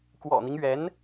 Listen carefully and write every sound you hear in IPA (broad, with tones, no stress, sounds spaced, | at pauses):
k w ɔ̰˨˩ n̪ i˦ ŋ ɥ ɛ˧˥ n